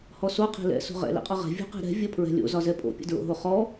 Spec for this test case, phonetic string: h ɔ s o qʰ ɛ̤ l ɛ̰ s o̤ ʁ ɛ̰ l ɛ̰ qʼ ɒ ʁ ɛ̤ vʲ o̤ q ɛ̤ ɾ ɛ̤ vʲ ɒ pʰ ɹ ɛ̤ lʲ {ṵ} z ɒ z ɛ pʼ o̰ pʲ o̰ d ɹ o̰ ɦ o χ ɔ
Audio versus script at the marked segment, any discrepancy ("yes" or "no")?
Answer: yes